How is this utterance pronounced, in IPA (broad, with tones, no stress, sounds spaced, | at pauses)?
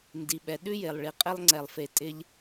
n d i˩ ɓ ɛ˩ ɗ ʉ˥ j e˩ lˠ ɭ i˩ qʼ ɪ˥ lˠ ŋ͡ǀ ɛ˨ lˠ f e˨ tʼ ɪ˦ ʎ